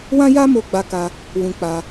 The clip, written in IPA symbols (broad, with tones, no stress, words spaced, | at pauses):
wã˦ja˦ mo˦ɡ͡ba˦ka˦ | wũ˧k͡pa˧